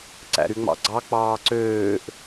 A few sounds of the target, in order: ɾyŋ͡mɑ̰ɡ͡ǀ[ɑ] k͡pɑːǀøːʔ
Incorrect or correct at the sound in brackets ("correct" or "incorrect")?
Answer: correct